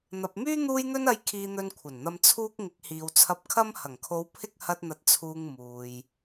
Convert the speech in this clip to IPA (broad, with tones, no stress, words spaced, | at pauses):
n̪ɐ˨p̚myː˥ n̪uː˧jn̪ɵ˧nɐ˨˧j kʰiː˧n̪ɵ˧nkʷʰɐ˨˩nn̪ɐ˧m t͡sʰuː˧k̚ ŋɪ˨˥k̚hiː˨wt͡sʰɐ˧p̚kʰɐ˥m hɐ˨˩ŋkʰo˨˧w pʰɪ˥k̚ hɐ˧t̚n̪ɐ˨˥t̚ t͡sʰuː˧ŋmuː˨j